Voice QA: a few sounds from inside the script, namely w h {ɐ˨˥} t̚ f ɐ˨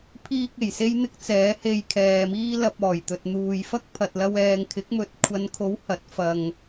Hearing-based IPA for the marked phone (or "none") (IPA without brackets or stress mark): ɐ˨˥